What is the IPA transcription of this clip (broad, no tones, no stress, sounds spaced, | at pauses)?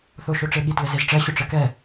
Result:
θ o ʃ o ʈ͡ʂ e ɠ i t l ɘ z e z ʈ͡ʂ ɛ ɕ ʊ ʈ͡ʂ ɘ k ɛ